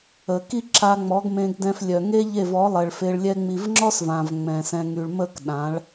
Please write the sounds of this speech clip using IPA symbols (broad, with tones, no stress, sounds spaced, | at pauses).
ə˨ k i˦ ǁ a˧ ŋ͡m ɔ˨˦ ɡ m ẽ˧ ɡ d ɛ̃˧ f lʲ œ˨ ŋ e˦ ʎ e˦˨ v ɔ˨˦ lˠ ɛ˨ ɭ f e˧ ɭ lʲ ɛ˦ ŋ͡m i˧ v ŋ͡ǁ ɔ˦ s v ã˨ v ŋ͡m ɛ̃˨ s ɛ̃˧ ŋ y˨ ɭ m ə˦˨ k ɗ ã˨˦ ɭ